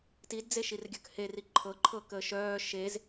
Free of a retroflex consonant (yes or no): yes